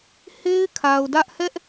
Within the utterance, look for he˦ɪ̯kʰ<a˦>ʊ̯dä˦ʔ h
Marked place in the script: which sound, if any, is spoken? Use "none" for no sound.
a˨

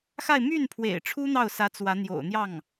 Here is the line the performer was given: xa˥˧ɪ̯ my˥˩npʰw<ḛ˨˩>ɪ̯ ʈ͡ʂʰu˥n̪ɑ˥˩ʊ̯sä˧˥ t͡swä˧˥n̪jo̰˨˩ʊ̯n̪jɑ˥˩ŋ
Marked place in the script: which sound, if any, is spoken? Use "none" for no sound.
ḛ˨˩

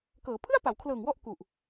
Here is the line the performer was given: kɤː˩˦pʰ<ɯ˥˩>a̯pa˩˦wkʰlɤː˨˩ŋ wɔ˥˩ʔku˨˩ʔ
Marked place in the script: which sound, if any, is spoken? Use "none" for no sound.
ɯ˥˩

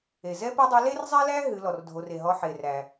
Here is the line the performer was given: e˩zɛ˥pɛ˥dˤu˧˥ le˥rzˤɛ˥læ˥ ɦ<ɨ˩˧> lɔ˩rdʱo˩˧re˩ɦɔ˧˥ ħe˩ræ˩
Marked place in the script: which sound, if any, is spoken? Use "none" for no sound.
ɨ˩˧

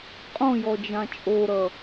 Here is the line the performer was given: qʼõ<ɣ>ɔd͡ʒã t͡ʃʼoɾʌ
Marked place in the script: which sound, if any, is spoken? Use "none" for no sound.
j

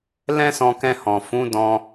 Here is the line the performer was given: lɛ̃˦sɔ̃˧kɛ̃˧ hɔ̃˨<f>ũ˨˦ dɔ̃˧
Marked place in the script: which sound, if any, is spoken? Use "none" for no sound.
f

